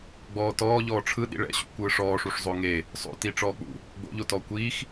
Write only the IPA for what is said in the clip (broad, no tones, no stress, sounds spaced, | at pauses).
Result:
ɡ͡b ɔː t ɔː ʎ ɔː ʈ͡ʂʰ ɯ ɗ ḭ ɭ ɛ̰ ɕ ṵ kʷ ɯː ʂ ɔː ʂ u ʂ zˤ o ŋ e | sˤ o̰ t i ʈ͡ʂ ɔː k͡p ṵ | ɡ͡b o̰ ʎ o t ɔ kʷ iː x